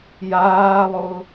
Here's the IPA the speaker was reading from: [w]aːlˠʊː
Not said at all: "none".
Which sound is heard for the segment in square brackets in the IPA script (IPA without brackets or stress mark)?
j